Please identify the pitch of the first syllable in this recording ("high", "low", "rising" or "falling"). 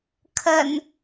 low